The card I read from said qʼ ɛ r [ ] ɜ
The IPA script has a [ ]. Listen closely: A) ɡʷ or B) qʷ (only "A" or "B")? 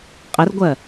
A